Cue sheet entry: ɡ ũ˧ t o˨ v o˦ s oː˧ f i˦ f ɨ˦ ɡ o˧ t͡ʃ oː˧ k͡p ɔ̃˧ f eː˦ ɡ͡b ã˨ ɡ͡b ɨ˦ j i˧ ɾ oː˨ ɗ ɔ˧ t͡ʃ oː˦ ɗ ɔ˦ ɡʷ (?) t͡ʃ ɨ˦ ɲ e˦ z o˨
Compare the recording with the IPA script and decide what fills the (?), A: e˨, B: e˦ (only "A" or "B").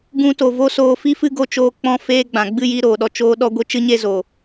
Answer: B